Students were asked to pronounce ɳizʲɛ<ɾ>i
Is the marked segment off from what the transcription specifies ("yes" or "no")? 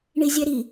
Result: no